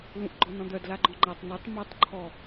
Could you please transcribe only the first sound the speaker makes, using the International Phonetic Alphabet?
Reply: l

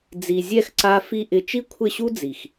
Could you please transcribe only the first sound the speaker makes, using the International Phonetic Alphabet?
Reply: d͡z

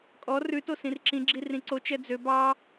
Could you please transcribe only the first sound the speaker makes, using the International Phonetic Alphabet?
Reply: kʼ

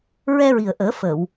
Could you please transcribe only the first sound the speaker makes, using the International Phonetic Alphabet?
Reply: ɹ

